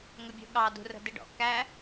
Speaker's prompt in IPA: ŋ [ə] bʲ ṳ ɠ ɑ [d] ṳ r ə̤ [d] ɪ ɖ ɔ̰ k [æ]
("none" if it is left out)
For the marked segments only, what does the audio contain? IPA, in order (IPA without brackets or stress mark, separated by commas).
ə, d, d, æ